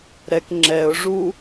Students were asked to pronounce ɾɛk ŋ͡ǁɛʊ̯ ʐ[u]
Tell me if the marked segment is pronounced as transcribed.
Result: yes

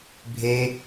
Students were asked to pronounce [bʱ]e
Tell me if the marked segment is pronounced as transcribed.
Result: yes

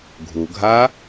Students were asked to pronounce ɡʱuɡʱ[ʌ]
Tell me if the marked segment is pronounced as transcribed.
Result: no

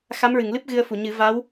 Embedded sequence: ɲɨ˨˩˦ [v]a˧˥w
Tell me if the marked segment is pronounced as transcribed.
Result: yes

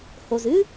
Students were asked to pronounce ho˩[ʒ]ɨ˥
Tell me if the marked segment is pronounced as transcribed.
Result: no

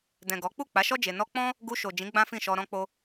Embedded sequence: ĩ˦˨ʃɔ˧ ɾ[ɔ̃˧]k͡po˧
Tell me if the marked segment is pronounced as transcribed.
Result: yes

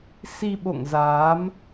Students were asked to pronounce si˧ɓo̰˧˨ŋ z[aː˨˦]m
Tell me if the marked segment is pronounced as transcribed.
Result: yes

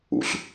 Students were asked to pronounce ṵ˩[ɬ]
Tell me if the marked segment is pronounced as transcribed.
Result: yes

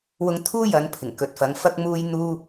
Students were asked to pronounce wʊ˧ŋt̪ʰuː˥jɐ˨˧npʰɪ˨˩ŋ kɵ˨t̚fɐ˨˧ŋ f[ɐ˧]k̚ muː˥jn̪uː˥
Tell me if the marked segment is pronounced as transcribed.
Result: yes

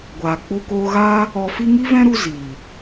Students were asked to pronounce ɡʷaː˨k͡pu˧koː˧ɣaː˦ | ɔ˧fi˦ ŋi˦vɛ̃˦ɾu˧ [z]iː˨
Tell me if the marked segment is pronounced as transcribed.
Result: yes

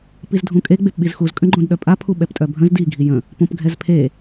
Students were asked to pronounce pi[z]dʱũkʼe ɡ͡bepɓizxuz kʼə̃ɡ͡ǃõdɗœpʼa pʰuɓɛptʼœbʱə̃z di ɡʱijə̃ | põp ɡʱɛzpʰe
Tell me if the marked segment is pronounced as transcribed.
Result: yes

